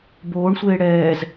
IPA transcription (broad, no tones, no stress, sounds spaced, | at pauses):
b oː ɳ sʷ eː ɽ ɛː z